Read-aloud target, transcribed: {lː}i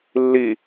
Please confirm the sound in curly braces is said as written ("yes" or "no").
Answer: yes